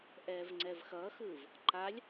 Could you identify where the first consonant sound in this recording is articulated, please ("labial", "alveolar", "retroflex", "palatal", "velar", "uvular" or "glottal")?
glottal